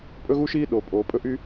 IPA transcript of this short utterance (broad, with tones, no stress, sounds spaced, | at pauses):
pʼ ɵ˥ ɣ u˥ ʃ iː˥ ɗ o˩ pʼ oː˩ pʼ ɵ˥ ʔ y˥